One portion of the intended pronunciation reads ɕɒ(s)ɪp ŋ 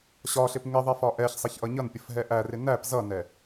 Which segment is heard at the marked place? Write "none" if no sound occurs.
ɬ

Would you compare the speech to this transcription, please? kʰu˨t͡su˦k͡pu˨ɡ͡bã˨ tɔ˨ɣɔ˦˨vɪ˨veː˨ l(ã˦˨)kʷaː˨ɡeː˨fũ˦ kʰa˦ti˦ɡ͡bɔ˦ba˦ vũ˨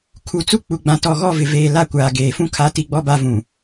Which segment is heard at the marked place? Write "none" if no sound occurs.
a˦˨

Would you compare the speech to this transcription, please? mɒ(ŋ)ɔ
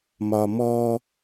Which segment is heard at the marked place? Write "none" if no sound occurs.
m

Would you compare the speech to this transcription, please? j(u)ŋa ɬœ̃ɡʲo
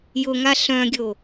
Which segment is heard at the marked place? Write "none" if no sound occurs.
ʊ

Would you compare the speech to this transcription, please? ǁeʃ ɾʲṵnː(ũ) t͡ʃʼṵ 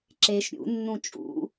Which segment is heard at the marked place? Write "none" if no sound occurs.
ũ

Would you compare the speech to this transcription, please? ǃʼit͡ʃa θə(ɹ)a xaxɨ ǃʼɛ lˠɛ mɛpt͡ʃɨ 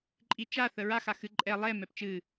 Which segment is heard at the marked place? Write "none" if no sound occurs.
ɹ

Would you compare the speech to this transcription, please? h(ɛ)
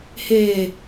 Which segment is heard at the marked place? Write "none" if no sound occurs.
ɛː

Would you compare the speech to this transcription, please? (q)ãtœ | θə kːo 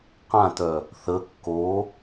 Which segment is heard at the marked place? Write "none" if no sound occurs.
q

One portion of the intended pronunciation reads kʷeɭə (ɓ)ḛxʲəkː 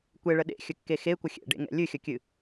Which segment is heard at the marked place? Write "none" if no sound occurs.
ɗ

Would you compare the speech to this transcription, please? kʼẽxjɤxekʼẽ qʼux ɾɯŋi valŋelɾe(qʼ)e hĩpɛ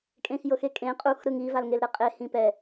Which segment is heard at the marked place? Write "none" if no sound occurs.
qʼ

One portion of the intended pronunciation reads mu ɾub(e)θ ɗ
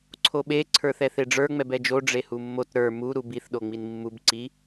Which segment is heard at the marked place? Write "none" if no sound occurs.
i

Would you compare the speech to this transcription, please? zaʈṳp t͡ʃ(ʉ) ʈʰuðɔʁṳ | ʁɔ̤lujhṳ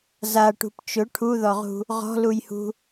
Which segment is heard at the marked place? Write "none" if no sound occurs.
ʊ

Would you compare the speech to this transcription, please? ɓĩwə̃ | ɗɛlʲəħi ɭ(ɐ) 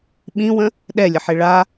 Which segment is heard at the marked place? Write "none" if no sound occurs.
a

